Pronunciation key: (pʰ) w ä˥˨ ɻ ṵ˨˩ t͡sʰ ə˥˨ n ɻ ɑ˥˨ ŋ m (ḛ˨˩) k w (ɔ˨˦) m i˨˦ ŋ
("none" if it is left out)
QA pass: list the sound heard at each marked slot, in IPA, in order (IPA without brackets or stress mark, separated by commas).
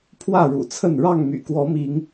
pʰ, y̰˨˩, ɔ˨˦